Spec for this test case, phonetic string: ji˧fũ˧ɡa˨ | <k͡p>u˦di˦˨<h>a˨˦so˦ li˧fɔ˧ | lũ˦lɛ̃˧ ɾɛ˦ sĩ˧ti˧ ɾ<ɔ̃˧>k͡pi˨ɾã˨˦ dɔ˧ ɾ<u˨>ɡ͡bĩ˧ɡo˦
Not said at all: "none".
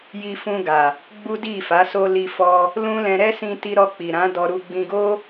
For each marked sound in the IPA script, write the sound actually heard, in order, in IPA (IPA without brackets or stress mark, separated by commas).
ɡ͡b, f, ɔ˧, u˧